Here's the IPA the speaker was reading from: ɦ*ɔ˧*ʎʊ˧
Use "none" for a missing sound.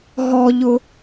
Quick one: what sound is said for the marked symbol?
ɔ˧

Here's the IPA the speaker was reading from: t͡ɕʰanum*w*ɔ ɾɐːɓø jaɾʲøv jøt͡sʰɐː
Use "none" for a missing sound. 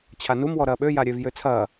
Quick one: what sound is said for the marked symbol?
w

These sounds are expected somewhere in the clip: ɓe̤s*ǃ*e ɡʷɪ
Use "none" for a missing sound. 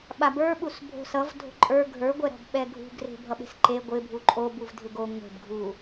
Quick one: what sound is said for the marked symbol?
ǃ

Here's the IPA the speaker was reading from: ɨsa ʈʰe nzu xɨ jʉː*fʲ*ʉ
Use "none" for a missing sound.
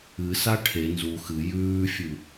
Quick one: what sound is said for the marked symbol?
fʲ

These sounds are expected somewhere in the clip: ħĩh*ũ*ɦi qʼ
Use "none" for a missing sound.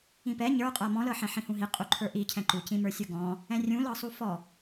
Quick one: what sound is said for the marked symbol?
ũ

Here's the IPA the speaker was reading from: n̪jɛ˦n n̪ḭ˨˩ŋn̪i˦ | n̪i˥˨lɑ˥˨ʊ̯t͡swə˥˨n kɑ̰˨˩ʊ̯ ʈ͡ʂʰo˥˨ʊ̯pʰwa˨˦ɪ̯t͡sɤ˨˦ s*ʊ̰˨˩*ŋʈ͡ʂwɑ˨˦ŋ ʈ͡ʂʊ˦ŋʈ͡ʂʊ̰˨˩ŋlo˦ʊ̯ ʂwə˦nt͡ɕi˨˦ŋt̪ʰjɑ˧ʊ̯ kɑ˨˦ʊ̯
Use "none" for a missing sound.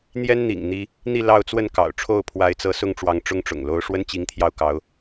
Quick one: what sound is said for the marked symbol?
ʊ˥˨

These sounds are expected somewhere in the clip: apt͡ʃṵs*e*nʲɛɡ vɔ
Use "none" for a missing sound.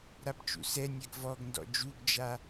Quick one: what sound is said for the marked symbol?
ɛ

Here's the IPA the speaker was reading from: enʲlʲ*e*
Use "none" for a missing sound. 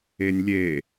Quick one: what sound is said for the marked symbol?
e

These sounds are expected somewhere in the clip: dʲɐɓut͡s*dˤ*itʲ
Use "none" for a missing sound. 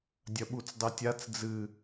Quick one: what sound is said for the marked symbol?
dˤ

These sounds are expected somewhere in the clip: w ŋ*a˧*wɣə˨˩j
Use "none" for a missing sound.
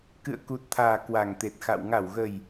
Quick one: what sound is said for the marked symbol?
a˧˩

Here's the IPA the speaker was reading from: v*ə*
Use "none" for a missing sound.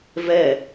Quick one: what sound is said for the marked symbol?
ɛ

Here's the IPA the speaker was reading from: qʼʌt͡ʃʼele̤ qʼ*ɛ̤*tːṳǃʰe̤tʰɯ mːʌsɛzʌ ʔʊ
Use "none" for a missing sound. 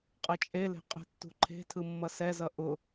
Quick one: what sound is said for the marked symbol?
ɛ̤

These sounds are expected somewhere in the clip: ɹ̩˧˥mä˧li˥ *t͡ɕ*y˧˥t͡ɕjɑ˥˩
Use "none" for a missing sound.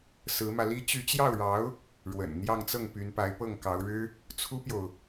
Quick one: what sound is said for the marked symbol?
t͡ɕ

